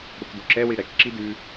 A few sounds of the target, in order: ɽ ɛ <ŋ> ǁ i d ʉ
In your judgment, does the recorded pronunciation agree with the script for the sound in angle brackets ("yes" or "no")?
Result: no